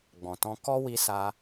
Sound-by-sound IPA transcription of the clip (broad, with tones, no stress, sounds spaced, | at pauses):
ɡ͡b ɔ̃˨ t ɔ̃˧ k ɔ˦ w i˧ s a˧